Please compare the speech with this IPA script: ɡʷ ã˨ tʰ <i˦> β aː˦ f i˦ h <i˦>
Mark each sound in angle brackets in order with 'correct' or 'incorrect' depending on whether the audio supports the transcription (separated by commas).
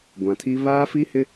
correct, incorrect